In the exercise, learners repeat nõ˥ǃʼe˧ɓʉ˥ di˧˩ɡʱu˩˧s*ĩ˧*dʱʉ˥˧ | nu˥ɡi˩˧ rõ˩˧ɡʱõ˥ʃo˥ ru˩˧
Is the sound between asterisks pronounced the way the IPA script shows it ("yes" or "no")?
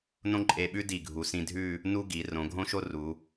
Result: yes